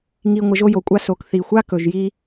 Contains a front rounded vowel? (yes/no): no